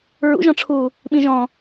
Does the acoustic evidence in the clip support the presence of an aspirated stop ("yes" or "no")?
yes